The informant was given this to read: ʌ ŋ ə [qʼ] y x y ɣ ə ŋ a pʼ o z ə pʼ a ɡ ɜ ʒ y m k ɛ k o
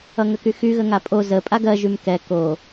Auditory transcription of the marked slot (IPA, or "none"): k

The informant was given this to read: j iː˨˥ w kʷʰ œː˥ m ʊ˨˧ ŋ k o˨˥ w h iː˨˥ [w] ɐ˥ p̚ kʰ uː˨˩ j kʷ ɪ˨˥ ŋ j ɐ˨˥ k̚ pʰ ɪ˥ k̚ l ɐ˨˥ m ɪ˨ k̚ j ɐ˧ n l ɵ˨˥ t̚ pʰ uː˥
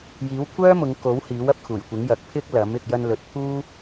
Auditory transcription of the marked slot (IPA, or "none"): w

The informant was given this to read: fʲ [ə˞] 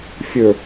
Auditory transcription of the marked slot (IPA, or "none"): ə˞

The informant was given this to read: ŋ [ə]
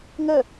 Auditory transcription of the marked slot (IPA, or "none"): ə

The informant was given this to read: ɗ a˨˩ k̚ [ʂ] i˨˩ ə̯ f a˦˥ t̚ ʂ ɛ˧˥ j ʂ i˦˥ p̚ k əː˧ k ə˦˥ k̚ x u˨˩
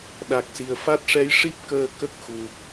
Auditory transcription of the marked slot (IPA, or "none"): s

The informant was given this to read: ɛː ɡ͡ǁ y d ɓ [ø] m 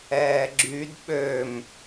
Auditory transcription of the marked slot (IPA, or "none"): ø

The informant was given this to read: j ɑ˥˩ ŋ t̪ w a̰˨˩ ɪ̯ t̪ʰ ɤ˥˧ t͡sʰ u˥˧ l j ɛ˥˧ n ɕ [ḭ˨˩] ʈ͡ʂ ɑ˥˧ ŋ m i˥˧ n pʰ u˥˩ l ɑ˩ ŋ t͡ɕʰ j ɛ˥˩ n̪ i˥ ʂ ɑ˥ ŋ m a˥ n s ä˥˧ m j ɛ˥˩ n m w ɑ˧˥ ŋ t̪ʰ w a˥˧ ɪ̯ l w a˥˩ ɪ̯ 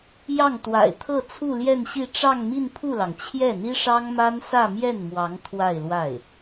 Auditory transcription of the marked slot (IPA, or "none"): i˥˧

